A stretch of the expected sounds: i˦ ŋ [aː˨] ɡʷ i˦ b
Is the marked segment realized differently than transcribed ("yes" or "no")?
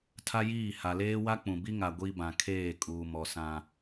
yes